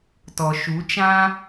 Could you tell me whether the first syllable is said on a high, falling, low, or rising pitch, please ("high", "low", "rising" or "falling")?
low